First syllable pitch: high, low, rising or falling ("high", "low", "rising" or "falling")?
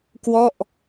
falling